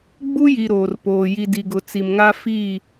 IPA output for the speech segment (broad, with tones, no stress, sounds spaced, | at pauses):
ɡ͡b u˦ j i˨ ɾ oː˨ r p oː˨ j i˨ d i˨ ɡ ʊ˨ t͡s i˨ m ŋ a˦ f i˦˨